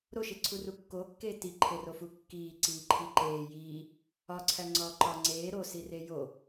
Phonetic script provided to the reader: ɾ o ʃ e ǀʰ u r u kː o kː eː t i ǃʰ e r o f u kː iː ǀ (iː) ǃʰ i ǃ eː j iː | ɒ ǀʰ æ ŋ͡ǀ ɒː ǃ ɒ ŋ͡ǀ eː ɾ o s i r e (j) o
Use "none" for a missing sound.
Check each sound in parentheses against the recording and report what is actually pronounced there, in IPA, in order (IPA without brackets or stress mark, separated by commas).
iː, j